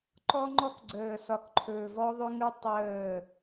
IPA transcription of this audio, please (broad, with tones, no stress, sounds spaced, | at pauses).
ǃ ɔ˦ ŋ͡ǃ ɔ˦ k ɡ͡ǀ əː˨ s ɒ˨ k ǃʰ ɵː˨ v ɔ˦ ðˤ ʏ˦ ŋ ɯ˦ tˤ əː˦˨